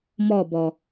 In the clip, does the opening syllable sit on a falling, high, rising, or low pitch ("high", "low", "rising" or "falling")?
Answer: falling